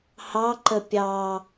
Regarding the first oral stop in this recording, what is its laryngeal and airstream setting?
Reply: click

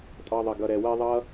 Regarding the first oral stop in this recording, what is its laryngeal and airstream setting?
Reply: ejective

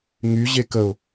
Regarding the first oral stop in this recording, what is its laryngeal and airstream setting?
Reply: plain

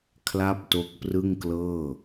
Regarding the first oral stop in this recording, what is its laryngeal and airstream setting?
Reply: aspirated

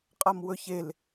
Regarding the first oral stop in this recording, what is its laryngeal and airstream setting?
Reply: ejective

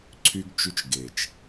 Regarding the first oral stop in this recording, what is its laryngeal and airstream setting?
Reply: click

